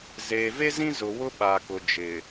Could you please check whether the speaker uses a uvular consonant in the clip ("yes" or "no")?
no